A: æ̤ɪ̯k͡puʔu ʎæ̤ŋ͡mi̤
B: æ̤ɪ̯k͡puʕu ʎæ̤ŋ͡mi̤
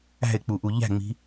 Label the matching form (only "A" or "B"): A